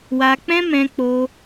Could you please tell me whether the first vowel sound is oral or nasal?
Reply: oral